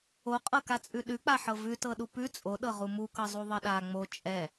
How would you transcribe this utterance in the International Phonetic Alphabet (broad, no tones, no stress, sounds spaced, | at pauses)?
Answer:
o qʼ ɤ k a t͡sʼ ʉ ɗ ʉ k͡p a ħ ɤ v ʉ t ɤ ɗ u p ʉ t͡sʼ o ɗ ɤ ʁ u m u k ɤ zˤ u ðˤ ɤ ɗ a ŋ͡m o t͡ʃʼ ɛ